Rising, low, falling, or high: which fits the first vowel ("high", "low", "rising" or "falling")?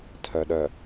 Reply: low